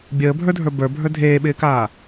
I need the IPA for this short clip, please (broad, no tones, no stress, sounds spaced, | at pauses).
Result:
bʲ əː bʱ ə˞ dʱ ə˞ b ə˞ bʱ ə˞ dʱ eː ɓ ɪː k aː